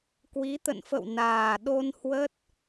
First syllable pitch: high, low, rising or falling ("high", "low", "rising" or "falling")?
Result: rising